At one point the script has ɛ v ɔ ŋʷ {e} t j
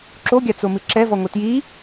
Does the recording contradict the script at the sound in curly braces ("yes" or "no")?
yes